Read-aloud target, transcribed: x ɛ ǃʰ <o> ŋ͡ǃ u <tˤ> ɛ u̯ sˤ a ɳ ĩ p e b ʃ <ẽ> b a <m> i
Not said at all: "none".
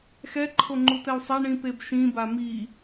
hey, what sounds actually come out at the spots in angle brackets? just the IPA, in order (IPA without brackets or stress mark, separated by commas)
o, t̪, ĩ, m